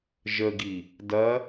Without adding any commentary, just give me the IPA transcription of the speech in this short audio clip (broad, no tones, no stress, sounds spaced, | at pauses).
ʒ ə ɡ i | d ɐ